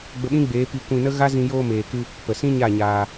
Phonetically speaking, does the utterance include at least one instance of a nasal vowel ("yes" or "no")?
yes